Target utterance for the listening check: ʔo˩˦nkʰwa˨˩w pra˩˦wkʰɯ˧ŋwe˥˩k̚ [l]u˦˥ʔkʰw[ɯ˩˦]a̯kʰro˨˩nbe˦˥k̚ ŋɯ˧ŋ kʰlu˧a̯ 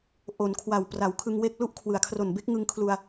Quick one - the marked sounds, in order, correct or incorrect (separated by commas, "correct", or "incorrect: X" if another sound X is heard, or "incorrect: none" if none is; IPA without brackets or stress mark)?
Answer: correct, correct